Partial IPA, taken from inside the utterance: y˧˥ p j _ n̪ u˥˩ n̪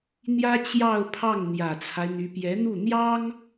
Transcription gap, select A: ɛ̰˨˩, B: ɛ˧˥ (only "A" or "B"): B